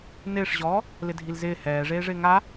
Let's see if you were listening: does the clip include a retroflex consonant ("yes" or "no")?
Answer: yes